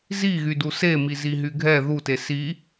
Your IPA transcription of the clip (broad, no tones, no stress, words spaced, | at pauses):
ziɣydu semiziɦy ɡʱɛ ðute si